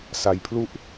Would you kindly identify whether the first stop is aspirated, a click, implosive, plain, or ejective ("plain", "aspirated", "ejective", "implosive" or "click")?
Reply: aspirated